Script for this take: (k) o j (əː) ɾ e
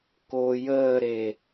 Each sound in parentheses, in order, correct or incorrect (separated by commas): correct, correct